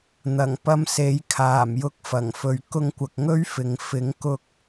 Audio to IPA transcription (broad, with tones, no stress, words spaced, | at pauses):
n̪ɐ˨˩ŋpɐ˧mse˨˥j kʰaː˨˩mjʊ˧k̚fɐ˨˩ŋfɵ˨ɥ kʊ˧ŋkʷɐ˨k̚ŋɵ˥ɥfɪ˨ŋ fɪ˨˥ŋ kʊ˥k̚